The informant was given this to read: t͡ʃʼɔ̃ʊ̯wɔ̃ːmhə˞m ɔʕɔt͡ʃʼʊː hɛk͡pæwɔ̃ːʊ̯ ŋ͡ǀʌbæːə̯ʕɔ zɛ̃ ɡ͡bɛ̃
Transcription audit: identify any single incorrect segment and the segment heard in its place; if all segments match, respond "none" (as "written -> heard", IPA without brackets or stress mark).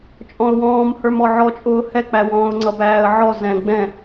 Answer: none